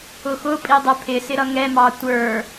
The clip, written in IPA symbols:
ʊ x ʊ pʼ i dˤ ɛ pʰ ɪ s ɪ ɾ ʌ ŋ ɛ m ɑ tʷ ə˞

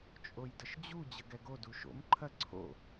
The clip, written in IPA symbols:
t͡ʃʼ o j d ə ʃ d͡ʑ u d͡ʑ ə ɡ ɛ ɡ o d u ʃ o̰ m ǃʰ ɐ ǀʰ o̰

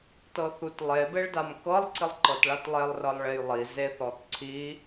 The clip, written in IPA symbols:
t ɤ θ u t lˠ e b e ɭ d a m k ɤ lˠ ǀ i lˠ ǃ ɤ t ɭ a t lˠ e lˠ r ɤ lˠ ɭ e j lˠ i z e θ ɔ t ǀʰ i

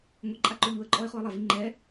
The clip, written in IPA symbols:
ŋʷ i ǃʼ a ǃ o ʎ u ə̯ ǃʼ ɔ ɪ̯ χ o ə̯ lˠ a v i ŋ͡ǃ ɛ

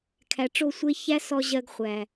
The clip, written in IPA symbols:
kʰ æ˨ ʈ͡ʂ o˦˨ sʷ e˦ ç æ˦ s ɔ˧ ʑ ɜ˧ ɡ χʷ æ˨

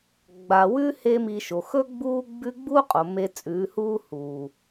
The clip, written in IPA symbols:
ɡ͡b a˨ w ʉ˦ h e˦ m i˧ ʃ o˨ x ɵ˦ ɡ͡b uː˦ ɡ͡b ʉ˦ ɡ͡b u˦ qʼ o˨ m e˧ t͡sʼ ʉː˨˦ h uː˦ h uː˨

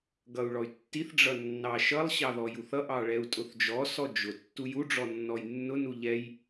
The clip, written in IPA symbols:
ɡ ʌ u̯ ɭ ɔ y̯ tː i θ ɖ͡ʐ ʌ nː ɑ ʃ ʌ lˠ ɕ ɑ ð ɔ j u θ ʌ ʔ ɑ ɭ ɛ u̯ tʼ ʊ θ d͡ʒ ɔ s ɔ d͡ʒ ʊ tː u j u ɖ͡ʐ ɔ nː ɔ j nː ʊ n u ʎ ɛ j

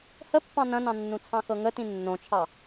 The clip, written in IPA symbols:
h ə pː ɑ̃ n ɐ̃ n ɑ̃ nː ũ t͡sʰ ɑ̃ x ɤ ŋ ə t ĩ nː õ t͡ʃʰ ɑ

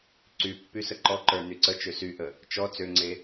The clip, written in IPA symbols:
ǀ y pː y s ə ǃ ɔ ǃ ə˞ n y ǀ ə t͡ʃ ø s y ʔ ə | t͡ʃ ɔ t͡s ø ŋ͡ǀ e

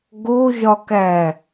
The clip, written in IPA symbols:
ɡ o ʒ ɒ k æ

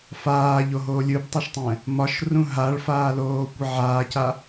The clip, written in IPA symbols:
f aː ʎ o ɦ oː lʲ ɯ b tˤ ɛ ʃ tˤ ɛ̃ | m ɒ ʃ r ũ ɦ a ɭ f aː l oː kʷ ə ʕ aː c a

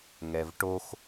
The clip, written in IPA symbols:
ŋ ɛ v ʈ o x

